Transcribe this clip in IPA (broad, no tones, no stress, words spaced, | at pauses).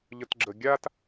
ʎətɡ͡ǁə ɡʲat